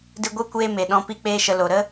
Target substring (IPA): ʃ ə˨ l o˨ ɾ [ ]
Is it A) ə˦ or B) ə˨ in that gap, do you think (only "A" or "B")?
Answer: A